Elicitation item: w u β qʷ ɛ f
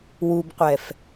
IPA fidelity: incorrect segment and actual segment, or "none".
β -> b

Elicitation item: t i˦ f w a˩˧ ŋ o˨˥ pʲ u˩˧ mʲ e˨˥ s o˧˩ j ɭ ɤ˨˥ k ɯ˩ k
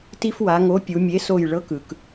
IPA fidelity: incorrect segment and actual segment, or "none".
none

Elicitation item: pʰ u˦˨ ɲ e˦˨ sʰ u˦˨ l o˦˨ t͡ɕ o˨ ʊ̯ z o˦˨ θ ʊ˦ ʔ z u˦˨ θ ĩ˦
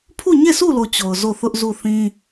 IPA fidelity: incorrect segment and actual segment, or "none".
none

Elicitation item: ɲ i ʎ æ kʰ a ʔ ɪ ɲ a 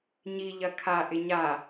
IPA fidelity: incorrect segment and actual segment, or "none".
æ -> ɐ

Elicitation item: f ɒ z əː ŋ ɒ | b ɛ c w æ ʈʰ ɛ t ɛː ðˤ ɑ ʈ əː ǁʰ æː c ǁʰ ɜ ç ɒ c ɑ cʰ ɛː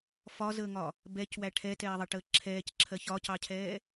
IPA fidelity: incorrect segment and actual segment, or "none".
æː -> ɛː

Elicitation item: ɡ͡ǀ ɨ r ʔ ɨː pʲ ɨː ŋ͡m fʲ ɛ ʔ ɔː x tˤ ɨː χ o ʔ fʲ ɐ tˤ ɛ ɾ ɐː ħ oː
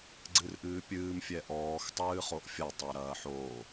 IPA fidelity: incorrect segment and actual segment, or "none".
ŋ͡m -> m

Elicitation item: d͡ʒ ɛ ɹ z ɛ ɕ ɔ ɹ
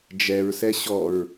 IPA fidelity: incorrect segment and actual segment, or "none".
z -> s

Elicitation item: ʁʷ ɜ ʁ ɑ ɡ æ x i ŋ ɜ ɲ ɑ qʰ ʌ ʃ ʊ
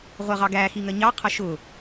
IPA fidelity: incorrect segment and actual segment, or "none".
none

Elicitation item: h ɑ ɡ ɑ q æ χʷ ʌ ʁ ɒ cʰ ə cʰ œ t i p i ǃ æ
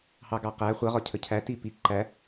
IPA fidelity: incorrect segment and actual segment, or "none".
œ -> æ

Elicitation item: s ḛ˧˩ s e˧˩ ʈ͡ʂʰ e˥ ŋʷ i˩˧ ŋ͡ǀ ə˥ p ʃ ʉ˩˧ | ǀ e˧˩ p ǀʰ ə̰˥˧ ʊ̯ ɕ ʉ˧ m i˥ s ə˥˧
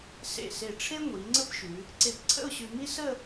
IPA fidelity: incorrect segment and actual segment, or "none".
none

